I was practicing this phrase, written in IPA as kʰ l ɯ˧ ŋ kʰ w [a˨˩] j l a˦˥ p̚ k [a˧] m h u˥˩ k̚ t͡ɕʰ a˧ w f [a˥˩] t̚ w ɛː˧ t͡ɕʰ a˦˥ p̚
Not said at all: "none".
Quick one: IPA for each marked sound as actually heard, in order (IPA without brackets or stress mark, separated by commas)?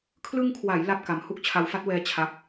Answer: a˩˦, a˧, a˥˩